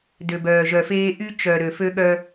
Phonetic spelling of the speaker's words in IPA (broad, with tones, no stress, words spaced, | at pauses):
dø˨bœː˨ʒœ˨feː˦ ʔy˦t͡ʃœ˨ ɾø˨ fø˦ɠœ˦